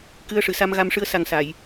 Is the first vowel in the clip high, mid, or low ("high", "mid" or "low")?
high